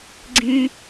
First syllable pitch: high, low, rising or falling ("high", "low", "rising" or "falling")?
high